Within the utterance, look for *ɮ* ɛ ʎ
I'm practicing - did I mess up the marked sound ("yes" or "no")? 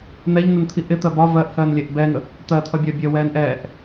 yes